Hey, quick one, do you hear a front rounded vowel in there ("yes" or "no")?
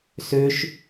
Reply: yes